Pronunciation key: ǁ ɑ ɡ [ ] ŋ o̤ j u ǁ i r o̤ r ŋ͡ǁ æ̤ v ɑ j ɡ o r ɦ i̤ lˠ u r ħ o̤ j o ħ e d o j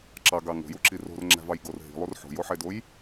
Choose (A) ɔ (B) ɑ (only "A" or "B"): B